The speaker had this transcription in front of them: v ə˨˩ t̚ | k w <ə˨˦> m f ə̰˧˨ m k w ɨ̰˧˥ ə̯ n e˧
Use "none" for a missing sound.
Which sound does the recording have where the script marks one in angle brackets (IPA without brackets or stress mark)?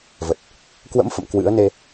ə̰˧˥